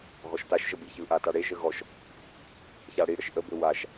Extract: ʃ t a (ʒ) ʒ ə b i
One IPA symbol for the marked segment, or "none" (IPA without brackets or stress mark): ʃ